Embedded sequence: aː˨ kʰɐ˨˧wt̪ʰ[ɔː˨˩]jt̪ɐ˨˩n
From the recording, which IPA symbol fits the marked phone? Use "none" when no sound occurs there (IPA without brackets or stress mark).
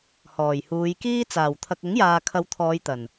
ɔː˨˧